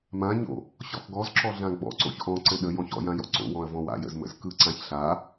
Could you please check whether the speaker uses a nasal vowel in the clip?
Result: yes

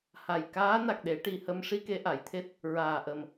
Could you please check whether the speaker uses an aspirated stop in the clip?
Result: yes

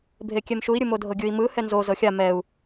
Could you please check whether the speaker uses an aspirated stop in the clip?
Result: no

